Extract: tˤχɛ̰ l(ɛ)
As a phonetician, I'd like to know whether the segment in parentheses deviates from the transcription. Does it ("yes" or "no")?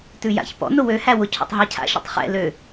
yes